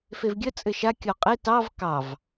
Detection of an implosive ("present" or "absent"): absent